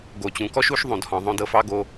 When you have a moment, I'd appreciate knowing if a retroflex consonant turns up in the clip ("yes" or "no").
no